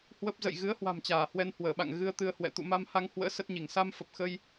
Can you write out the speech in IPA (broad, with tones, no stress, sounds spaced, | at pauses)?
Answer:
h w ə˦˥ p̚ z ə̰˧˨ j ɣ ɨ˨˦ ə̯ h w a̤˨˩ m t͡ɕ aː˧˩ h w ɛ˧ n h w əː˧˩ ɓ a̰˧˨ ŋ ɣ ɨ˧ ə̯ t̪ ɨ˧ ə̯ h w ɛ̰˧˨ t̪ ṵ˧˨ m a˧ m h a˧ ŋ h w ə̰ː˧˥ s ə˦˥ t̚ ɲ i˧˩ ŋ s a˧ m f ə˨˩ p̚ x ə˧ j